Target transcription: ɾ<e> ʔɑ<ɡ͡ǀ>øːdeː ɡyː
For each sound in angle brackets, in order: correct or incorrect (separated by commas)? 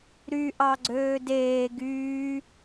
incorrect, correct